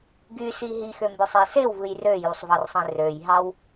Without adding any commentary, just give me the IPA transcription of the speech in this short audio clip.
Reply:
ɡysi ɦixømbisˤæ sewvɯj røjusˤvɑrsˤẽ røjɦɑw

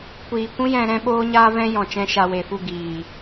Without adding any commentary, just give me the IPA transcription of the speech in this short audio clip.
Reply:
kʷiː˨kʷũ˦jɛ̃˧ɾɛ̃˧ ɓoː˦ɲa˦vɛ̃˦ jɔ̃˨ t͡ʃɛ̃˦ʃa˧ we˨fu˦˨ ɡiː˨

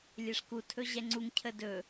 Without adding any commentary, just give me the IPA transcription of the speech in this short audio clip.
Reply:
lʲɛʂku tʰɵʑɛŋ͡ǀuŋ cʰədɵ

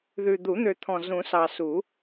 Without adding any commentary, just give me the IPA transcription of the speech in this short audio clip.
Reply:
ðʉ˨d̪u˨˩˦n̪ø˨t̪ʰɔ̃˨ zũ˨˩˦sɑ˨su˨˩˦

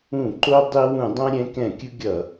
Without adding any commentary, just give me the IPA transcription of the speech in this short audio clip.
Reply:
ũ˧˩˧ǃo˧ dˤi˧wũ˧˩˧dˤõ˧ ɾʲɛ̃˧ kɛ̃˧˩˧kʲɯ˧ɡʲʌ˧˩˧

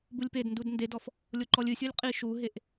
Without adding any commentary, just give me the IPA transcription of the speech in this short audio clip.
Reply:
bulʲpedndud ndedɔf | lʲoǃɔlʲɨsʲulʲ qʼiʃuɦeʔ

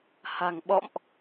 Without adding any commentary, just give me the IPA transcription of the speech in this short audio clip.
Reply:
ha̤˨˩ŋ ɓɔ̰˧˨mʔ

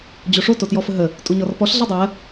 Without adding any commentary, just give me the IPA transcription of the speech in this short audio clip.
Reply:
d͡ʑoʂo totjɔfəɦə | tʼuɲɔrpɔɬ ɮɜdˤɜ

